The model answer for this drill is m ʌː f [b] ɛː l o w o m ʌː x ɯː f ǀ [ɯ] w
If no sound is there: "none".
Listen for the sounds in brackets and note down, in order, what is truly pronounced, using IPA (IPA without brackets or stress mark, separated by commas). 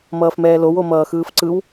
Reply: m, ɯ